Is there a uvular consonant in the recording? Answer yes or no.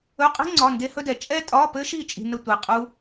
yes